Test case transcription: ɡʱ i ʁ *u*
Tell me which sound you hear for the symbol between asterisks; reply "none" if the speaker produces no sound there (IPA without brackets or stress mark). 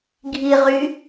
y